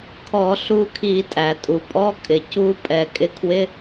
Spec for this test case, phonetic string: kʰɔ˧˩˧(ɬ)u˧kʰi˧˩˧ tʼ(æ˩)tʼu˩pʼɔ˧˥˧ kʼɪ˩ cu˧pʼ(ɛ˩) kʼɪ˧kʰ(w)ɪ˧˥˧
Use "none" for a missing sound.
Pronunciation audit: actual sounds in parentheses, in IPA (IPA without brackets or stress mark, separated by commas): ɬ, æ˩, ɛ˩, w